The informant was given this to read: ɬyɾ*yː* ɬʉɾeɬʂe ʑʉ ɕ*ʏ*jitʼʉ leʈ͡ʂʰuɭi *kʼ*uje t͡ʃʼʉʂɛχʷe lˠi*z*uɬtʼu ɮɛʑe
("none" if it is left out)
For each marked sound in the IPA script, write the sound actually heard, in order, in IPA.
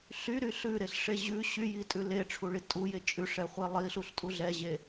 y, y, tʼ, ɬ

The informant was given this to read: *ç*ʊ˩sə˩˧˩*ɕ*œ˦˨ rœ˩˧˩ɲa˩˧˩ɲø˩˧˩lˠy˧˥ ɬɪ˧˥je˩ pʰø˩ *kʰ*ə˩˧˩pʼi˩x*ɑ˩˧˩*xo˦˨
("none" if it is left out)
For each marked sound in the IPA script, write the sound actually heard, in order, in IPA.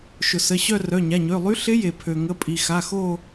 ʃ, ɕ, ŋ, a˩˧˩

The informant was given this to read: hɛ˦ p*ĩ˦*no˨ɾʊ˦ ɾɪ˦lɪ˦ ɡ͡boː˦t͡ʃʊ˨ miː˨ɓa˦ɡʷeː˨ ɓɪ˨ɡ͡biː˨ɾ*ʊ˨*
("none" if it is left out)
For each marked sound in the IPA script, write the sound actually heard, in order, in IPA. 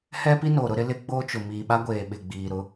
i˦, ʊ˦

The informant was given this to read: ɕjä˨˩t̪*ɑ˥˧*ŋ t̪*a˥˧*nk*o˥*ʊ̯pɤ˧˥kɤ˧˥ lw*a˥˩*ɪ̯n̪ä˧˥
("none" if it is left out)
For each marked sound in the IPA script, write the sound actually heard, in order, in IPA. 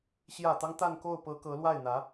ɑ˦, a˥˧, o˥˩, a˥˩

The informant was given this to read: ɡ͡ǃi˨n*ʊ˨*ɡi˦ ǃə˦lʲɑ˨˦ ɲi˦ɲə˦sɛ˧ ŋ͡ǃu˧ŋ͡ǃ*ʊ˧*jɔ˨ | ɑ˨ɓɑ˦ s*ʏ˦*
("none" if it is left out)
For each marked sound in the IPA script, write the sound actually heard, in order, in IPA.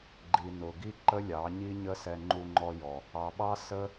ʊ˨, ɔ˧, ə˦

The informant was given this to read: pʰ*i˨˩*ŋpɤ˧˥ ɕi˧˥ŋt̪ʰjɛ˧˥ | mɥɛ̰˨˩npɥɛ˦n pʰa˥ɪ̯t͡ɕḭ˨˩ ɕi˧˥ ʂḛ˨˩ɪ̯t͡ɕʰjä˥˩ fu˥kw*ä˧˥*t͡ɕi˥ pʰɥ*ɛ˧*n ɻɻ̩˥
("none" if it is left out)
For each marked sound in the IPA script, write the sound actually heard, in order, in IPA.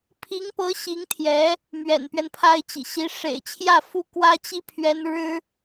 i˧˥, ä˥, ɛ˥

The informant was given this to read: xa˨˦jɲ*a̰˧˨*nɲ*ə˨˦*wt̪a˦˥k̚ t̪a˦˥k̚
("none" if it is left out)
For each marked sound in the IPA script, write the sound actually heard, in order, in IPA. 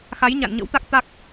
a̰˧˨, ə̰˧˥

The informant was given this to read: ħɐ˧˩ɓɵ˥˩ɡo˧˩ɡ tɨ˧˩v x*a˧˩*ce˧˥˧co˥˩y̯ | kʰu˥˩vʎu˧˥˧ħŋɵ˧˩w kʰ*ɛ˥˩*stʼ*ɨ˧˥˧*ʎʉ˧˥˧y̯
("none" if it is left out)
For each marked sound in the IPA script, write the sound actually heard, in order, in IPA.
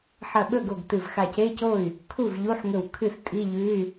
a˧˩, ɨ˥˩, i˧˥˧

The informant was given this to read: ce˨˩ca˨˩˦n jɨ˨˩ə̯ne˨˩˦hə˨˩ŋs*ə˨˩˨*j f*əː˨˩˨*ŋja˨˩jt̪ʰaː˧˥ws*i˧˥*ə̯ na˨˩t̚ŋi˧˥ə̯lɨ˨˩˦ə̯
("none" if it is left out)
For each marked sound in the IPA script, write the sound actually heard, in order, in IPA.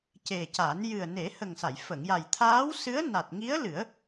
a˨˩˨, ə˨˩˨, ɨ˧˥

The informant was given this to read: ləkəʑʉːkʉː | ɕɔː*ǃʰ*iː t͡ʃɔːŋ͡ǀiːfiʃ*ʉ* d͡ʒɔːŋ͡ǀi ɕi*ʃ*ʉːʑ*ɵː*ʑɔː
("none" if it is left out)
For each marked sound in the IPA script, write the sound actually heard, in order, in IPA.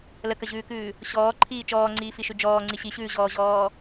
ǃʰ, ʉ, ɕ, ɔː

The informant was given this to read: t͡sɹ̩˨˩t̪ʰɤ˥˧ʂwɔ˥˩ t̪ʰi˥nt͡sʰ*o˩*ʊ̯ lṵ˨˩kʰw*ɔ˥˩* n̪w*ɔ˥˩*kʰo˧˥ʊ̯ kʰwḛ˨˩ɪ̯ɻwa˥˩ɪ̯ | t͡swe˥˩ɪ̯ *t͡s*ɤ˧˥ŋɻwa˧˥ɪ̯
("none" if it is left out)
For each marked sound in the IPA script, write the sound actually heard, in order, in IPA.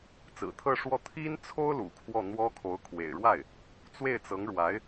o˥, ɔ˥˩, ɔ˥, t͡s

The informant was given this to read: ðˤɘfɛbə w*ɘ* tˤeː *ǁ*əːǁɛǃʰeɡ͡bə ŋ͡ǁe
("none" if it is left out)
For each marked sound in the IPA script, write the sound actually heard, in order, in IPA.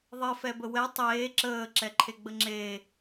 ɛ, ǁ

